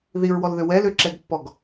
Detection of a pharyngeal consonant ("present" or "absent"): absent